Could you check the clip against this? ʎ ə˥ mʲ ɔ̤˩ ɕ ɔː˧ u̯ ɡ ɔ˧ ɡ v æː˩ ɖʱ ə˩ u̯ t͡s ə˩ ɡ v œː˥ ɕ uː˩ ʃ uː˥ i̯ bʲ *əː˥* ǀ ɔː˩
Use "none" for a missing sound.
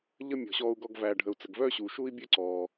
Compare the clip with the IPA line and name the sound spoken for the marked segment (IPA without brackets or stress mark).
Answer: əː˥